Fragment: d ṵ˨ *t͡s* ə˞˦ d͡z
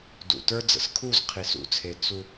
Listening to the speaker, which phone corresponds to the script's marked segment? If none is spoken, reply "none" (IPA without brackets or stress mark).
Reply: t